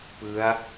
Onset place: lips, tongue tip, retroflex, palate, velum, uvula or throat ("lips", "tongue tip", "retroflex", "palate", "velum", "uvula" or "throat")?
lips